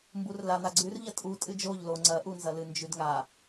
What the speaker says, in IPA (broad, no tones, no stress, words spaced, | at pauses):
mburlan̪a ɡ͡ǀʉrʎɐ tʼu tʼɨd͡ʒoʎ lo ŋ͡ǀɐʔunzɐlɨ nd͡ʒʉdŋa